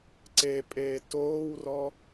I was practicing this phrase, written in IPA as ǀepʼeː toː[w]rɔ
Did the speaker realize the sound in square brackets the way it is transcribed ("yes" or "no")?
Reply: yes